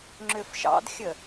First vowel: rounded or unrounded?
rounded